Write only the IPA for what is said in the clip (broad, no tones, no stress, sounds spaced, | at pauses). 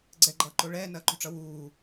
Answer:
ɡ͡ǀ ɛ ɡ͡ǃ ʌː ǃ o ɭ ɛː n ɐː ǃ ṳ ʈ͡ʂ ʌ w uː